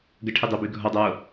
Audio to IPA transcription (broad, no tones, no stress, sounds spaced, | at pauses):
ɡ ə ʈʰ i dˤ œ b y ɡʱ ɔ dˤ œ w o